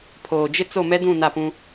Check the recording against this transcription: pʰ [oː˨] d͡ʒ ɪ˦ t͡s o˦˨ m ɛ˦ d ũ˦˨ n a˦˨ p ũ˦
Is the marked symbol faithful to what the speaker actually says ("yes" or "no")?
yes